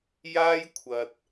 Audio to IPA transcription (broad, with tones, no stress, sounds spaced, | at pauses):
j aː˥ j kʷʰ ɐ˨ t̚